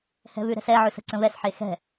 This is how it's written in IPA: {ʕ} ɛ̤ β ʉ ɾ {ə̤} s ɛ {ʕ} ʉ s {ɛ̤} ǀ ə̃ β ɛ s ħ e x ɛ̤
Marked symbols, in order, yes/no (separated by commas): no, no, yes, no